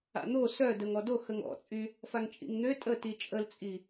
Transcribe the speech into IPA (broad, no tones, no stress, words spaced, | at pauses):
a̰n̪o sœdəŋ ɔdo xəŋɔ̰t͡sʼy | faŋt͡ʃʼḭŋn̪ø tʼə tit͡ʃʼəlt͡sʼi